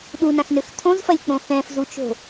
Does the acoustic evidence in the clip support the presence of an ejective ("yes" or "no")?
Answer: no